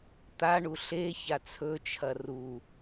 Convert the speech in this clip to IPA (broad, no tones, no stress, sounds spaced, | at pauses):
t̪ a ɳ u ɬ e ç a t͡sʰ ɵ t͡ʃʰ ɐ r u